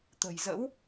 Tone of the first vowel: low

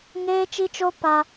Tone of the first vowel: high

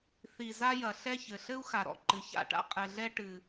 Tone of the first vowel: low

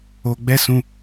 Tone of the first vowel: low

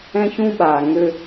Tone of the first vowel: high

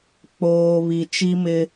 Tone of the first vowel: low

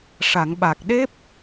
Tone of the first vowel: low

